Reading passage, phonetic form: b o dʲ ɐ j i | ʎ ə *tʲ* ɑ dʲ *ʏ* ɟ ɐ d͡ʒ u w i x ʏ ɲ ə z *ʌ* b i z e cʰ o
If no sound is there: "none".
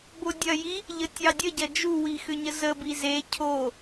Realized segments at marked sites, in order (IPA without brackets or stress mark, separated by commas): tʲ, ə, ə